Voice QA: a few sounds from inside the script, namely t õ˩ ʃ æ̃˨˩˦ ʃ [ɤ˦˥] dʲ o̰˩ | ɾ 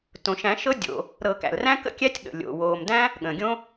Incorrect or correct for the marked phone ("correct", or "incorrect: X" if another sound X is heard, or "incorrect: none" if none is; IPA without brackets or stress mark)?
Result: correct